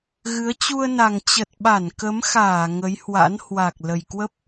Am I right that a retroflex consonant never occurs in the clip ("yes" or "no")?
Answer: yes